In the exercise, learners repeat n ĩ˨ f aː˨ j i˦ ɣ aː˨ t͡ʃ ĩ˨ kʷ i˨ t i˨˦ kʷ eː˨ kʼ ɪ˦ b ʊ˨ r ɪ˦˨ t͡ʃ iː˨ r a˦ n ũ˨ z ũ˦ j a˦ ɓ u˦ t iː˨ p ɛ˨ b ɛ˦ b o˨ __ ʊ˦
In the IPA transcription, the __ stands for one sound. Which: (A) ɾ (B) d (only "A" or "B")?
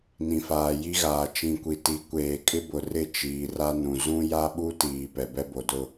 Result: B